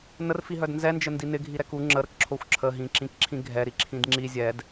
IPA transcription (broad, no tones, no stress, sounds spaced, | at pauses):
n ə r f i ɦ œ d n z ɛ n d͡ʒ ə n d i n ɪ ɡʱ i ɾ ɛ k u ŋ͡ǁ ə ɾ ə k ǁʰ o xʷ ǁʰ ə ɦ ĩ ǁ ĩ k ǁʰ ĩ ɡʱ ɛ ɾ i ǁʰ ĩ d ŋ͡ǁ i zʲ ɛ d